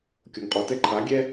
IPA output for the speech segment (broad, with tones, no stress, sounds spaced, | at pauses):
kʲ o˩ ŋ qʼ ɔ˩ t ɛ˧ ǃʰ a˩˧ ɡʲ ɛ˧